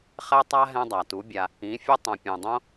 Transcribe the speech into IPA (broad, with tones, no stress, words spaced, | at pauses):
χɛ˦tˤa˦ ɦɛ̃˦dˤa˨ tu˨˦bʲa˧ | ĩ˨˦fʲə˦ tˤõ˨pʲẽ˨dˤõ˦